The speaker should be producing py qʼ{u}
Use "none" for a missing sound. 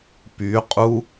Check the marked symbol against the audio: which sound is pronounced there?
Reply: u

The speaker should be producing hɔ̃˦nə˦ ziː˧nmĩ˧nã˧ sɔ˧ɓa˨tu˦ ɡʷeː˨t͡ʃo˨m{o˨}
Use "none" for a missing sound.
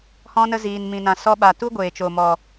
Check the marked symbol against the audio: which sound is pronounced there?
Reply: ɔ˨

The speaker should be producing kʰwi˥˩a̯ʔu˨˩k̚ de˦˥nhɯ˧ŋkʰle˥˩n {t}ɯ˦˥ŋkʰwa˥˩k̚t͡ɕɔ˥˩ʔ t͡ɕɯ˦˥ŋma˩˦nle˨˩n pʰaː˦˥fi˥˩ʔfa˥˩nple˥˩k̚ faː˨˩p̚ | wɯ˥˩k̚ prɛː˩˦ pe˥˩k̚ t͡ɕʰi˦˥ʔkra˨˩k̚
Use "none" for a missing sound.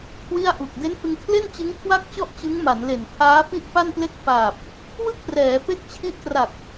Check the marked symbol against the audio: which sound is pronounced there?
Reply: t͡ɕ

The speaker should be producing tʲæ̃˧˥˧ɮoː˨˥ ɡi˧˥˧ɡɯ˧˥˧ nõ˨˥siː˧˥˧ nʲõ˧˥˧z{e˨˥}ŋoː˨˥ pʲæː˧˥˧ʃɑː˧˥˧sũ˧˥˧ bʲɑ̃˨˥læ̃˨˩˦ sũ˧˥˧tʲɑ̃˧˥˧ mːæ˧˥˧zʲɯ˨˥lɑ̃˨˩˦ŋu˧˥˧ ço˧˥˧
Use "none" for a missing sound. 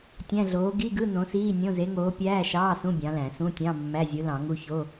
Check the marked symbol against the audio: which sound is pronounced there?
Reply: e˨˥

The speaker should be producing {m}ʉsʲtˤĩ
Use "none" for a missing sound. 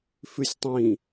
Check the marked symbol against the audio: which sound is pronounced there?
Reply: f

